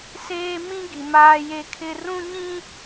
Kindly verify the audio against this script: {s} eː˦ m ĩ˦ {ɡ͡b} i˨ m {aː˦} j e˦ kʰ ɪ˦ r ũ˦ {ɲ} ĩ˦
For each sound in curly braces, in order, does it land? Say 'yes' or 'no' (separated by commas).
yes, no, yes, yes